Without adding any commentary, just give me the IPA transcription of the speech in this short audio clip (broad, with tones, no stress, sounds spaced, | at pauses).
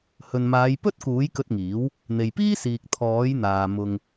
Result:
h ɵ˨ n m aː˨˧ j p ɵ˥ t̚ k uː˨˥ j k ɵ˧ t̚ ŋ iː˨˥ w | n̪ e˨ j p iː˥ s iː˨ k̚ t̪ʰ ɔː˨˥ j n̪ aː˨ m ʊ˨ ŋ